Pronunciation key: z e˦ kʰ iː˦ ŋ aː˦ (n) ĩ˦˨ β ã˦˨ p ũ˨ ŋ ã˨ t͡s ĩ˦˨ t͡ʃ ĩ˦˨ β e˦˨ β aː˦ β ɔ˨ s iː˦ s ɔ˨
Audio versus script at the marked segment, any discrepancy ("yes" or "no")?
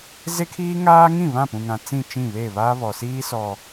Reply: yes